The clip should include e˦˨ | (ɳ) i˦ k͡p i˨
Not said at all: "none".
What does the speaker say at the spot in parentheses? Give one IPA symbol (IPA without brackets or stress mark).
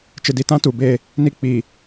n